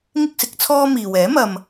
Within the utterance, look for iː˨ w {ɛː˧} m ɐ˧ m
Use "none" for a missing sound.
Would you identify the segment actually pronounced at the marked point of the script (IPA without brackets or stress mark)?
ɛː˨˥